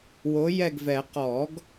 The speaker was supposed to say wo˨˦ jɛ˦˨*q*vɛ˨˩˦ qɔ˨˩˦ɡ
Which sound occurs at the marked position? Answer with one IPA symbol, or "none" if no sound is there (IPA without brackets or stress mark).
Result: ɡ